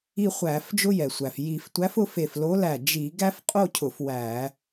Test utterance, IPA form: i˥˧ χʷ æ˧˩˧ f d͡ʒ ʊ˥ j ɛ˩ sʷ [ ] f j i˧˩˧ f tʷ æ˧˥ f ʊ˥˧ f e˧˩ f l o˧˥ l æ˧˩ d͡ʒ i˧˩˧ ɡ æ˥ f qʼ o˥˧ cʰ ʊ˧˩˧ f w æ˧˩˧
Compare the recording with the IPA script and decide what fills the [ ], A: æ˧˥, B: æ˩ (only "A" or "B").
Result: B